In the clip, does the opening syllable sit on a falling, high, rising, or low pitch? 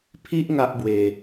high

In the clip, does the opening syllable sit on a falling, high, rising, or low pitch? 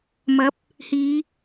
rising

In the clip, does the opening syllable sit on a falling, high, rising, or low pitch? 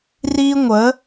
high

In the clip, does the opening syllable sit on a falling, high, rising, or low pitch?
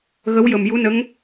rising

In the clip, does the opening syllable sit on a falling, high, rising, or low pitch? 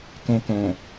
low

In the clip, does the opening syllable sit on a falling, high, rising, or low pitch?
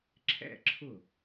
falling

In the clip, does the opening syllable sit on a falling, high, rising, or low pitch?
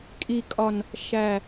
low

